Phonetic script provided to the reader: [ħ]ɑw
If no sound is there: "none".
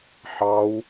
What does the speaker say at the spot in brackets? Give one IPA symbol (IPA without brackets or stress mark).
ħ